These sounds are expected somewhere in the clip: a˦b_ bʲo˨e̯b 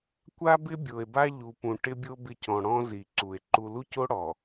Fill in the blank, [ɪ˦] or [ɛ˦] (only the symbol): ɪ˦